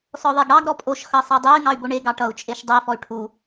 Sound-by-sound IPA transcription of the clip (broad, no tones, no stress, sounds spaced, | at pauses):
s ɔ ðˤ e ɡ ɽ ɑ ɡ ɾ ɔ pʼ o ʃ x ʌ sˤ ɤ dˤ e y̯ ŋ ɑ y̯ b o ɳ e ɡ ɑ ʈ ʌ u̯ t͡ʃʼ e ʃ dˤ e f ɔ y̯ ʈʰ u